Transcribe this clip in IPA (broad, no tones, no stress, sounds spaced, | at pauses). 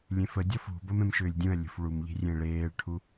lʲ ẽ f ə dʲ ɔ f ṳ b ə m ẽ m ʃ ʏː lʲ dʲ ũ ɐ̯ lʲ ṳ f ɭ u m ʎ i̤ rʲ ẽ ɭ eː ɭ ʈʰ u